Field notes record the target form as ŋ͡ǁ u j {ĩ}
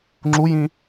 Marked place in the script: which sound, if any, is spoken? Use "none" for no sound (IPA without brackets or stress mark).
ĩ